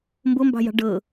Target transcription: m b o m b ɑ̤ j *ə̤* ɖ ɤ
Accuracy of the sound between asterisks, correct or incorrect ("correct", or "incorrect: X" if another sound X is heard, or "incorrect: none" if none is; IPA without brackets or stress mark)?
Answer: incorrect: ɑ̤